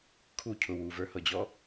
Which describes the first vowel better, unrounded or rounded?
rounded